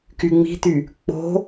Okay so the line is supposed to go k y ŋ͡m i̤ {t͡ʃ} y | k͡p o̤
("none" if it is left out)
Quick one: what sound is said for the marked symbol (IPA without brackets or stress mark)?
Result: t̪